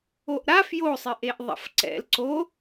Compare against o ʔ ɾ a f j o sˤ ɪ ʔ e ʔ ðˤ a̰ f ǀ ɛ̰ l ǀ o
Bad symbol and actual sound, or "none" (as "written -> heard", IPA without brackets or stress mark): none